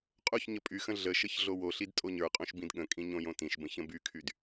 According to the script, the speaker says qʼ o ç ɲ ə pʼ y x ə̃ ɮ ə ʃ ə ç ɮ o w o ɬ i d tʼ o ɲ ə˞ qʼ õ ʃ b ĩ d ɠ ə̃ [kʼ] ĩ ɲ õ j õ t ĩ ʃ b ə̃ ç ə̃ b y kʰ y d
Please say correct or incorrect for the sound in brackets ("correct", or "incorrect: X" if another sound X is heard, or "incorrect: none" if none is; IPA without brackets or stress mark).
correct